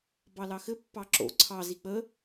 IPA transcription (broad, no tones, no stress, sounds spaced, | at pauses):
b ɑ l ɑ x ɘ pː ɑ ǁ o̰ ǀʰ ɑ z i k͡p ə